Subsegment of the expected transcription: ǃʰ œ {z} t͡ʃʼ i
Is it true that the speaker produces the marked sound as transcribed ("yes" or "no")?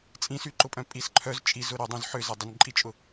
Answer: yes